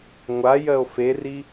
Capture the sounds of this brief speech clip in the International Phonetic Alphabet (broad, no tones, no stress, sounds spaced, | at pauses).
ŋʷ a j ɜ o̯ f e r i